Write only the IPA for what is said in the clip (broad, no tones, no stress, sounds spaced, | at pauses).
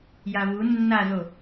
j a v u nː a z o